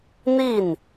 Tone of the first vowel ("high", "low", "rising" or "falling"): falling